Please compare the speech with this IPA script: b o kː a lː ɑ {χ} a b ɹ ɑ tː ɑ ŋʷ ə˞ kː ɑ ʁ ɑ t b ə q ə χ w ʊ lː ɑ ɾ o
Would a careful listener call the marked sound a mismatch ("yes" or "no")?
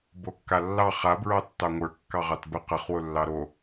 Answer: no